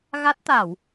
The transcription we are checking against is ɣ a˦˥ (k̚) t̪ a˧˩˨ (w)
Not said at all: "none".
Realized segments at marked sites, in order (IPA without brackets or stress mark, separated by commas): t̚, w